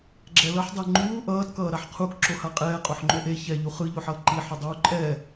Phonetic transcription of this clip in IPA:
ɡ͡ǁ ɛ l ʌ ħ dˤ e ŋ͡ǃ uː ʔ ʌː t k ʌː ɾ a ħ qʰ u k ǁ o h a qʼ ɛː qʼ o ħ ŋ͡ǃ o ʔ e ç ɛ ʎ u χ ɯ ʎ o ħ ʌː ǃ i ħ ɯ dˤ uː ǃʼ ɛː

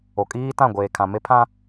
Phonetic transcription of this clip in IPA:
o˨ kʼ iː˦ t ã˦˨ ɡʷ eː˨ kʰ ã˨ m e˦ pʰ ã˦

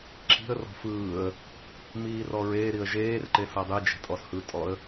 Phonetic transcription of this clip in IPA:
ǁ i̤ ə̯ r ɔ̤ f ɯː ə̯ | m iː r ɔ ɹ eː ɾ i ə̯ ʒ eː r ǃ e s ɤ dˤ i d͡ʒ e̤ tʼ ɔ s h ɯ tʼ ɔ ə̯

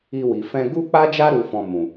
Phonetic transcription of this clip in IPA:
i˧ w i˨ f ɛ̃˧ ɡ u˦ k͡p a˦ d͡ʒ a˦ ɾ u˦ f ɔ̃˧ m ũ˨

